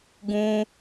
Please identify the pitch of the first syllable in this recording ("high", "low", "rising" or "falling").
high